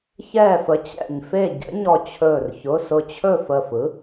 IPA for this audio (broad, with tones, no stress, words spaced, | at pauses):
çɛː˥˨fə˨˥t͡ɕɛ̰˧˩ɲ fe˥˨ɟə̰˨˥ɲɔ˧˩t͡ɕʰɵː˧˩r çʊ˩˧˩sʊ˧˩ t͡ɕʰɵ˥˨fə˧˩fɯ˨˥